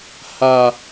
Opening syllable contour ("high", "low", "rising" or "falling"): low